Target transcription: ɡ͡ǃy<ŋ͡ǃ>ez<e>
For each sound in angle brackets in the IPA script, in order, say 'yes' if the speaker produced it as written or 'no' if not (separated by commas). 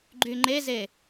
yes, yes